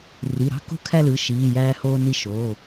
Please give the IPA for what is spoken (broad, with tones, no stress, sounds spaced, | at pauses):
r i˩˧˩ ɾ ɑ̤˥ k o̤˥˧ kʰ æ˥˧ l ɯ˩˧˩ ʃ iː˩˧˩ j æː˧ h oː˧ n i˧ ʃ oː˩˧˩